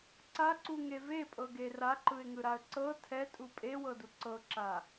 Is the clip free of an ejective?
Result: no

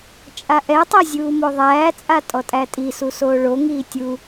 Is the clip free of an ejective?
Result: no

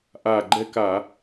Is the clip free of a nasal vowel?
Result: yes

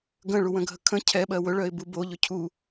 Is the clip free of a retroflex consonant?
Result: no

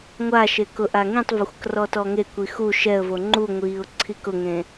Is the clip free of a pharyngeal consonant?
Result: yes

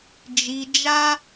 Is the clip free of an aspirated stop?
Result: yes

